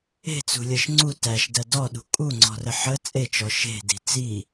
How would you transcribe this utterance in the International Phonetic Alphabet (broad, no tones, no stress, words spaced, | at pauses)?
e̤t͡sṳlʲɜʃ ŋ͡ǀu tæʃdɜ dɔɗṳ kʼuŋ͡ǀɔ̤rə ħə t͡sʼet͡ʃɔ ʃe̤di̤ t͡si